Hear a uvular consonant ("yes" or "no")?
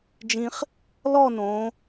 yes